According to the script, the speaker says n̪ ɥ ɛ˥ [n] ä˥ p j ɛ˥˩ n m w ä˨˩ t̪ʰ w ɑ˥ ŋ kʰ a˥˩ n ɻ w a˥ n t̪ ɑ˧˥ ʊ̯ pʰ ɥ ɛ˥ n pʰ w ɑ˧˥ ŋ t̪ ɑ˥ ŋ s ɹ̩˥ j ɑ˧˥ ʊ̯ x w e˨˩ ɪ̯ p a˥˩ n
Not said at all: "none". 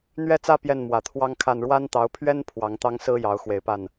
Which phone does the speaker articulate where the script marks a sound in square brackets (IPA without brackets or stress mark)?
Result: t͡s